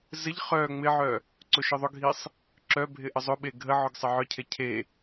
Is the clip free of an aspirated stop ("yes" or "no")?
no